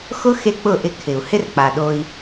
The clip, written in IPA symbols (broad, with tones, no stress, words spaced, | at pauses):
xʊ˦ xe˦k͡pʊ˦˨ʔɪ˧ kʰɪ˨u̯ hɪ˦rk͡pa˨ɗo˧i̯